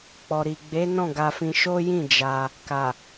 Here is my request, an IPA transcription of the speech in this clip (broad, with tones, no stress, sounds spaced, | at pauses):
k͡p ɔ˨ ɾ i˨ ɡ͡b e˨˦ n ɔ̃˦˨ ɡ a˧ f ĩ˧ ʃ o˦ j ĩ˦˨ d͡ʒ a˧ | k a˨